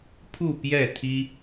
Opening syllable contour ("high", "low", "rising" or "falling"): falling